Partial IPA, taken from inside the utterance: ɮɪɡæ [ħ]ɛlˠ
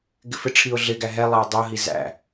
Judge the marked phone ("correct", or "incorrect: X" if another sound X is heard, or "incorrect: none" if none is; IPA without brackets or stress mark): incorrect: ɦ